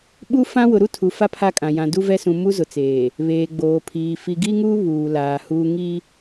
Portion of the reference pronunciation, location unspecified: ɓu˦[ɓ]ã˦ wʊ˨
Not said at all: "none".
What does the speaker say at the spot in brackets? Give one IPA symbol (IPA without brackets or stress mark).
f